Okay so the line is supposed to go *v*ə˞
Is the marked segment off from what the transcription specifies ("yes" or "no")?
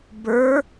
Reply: yes